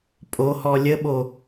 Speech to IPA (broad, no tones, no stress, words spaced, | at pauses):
pʼohɔ lʲəɓo